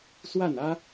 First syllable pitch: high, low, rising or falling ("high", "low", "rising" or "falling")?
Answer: falling